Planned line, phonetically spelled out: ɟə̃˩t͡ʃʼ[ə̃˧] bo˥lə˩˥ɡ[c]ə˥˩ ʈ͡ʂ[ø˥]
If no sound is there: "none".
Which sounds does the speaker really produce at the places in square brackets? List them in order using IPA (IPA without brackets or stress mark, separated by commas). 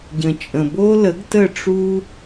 ə̃˩, t, u˥